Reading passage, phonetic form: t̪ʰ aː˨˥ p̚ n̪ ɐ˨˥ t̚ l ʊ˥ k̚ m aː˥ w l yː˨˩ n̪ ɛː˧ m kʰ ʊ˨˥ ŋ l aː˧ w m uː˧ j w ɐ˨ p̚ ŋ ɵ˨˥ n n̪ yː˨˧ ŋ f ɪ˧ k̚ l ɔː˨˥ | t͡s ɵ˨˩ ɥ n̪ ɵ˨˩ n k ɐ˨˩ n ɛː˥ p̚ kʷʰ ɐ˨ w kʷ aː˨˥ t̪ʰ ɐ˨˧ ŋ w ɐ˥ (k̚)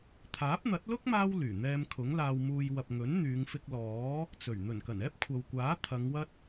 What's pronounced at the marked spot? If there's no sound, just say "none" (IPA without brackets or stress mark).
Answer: t̚